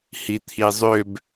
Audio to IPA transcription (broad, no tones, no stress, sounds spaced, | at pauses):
h i t̪ʰ i zˤ ø b